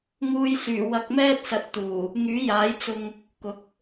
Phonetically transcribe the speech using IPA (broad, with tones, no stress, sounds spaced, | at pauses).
ŋ uː˧ j s yː˨˩ w ɐ˧ k̚ m ɛː˥ t̚ s ɐ˨˥ t̚ t̪ uː˨˩ | ŋ yː˨˥ j aː˨˥ j t͡s ʊ˧ ŋ | k ʊ˨˥ k̚